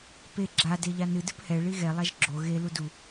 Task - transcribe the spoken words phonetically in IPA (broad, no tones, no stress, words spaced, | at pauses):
pe ɡ͡ǁa deʎanɨ dɨphɛ ɭiɣɛ lˠaʒɡ͡ǁo ɣe ludu